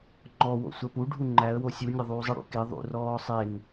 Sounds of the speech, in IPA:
ŋ͡ǃ ɔ w o̰ sʷ ɜ p u ɖʱ u ŋ͡ǃ æ ə̯ w o sʲ u nʲ ɐ ðˤ uː zˤ ə ɽ ṵ k e ðˤ ṵ r ɔː sˤ e n

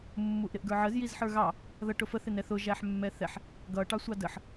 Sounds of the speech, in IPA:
mː u ʔ ɾ ɪ ʔ ɡ ə˞ ʕ ə z j i z ħ ə˞ ɣ ɑ | ð ʌ ʈ ʊ f ə θ ɪ n ɛ θ ʊ ʒ æ ħ mː ɛ θ ɛ ħ | ɡ ʌ ʈ ɑ sʷ ɑ d ə ħ

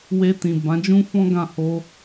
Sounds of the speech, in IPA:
w e˧ t ĩ˨ b ã˨˦ d͡ʒ ũ˦ f ɔ̃˦ ɡ ã˦˨ h o˧

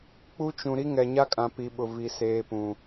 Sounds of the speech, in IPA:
k͡p u˦ t͡ʃ ũ˨ ɾ i˦ ŋ ɛ˨ ɲ a˦ kʼ ã˨ p i˨ ɓ ʊ˨ v i˨ s eː˨ p ũ˨

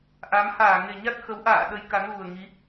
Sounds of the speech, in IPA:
ʔ a˨˦ m h aː˧˩ ŋ e˨˩ ɲ a˦˥ t̚ x ə˨˦ w ʔ a̰ː˧˨ ɗ ə˨˦ j k a˨˦ n ɣ u˨˩ ə̯ ŋ i˨˦

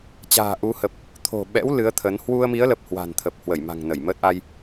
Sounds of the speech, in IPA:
t͡ɕ a̤ː˨˩ ʔ u˨˦ h ə˨˩ p̚ | t̪ʰ o̤˨˩ ɓ ɛ̰˧˥ w l ɨ˨˦ ə̯ t̪ʰ ə˨˦ n h w u˧ ə̯ m i˨˦ ə̯ l ə˨˩ p̚ h w a̤˨˩ n t̪ʰ ə˨˩ p̚ h w ə˧˩ j m a̤˨˩ ŋ n ə˧˩ j m əː˦˥ t̚ ʔ a˧ j

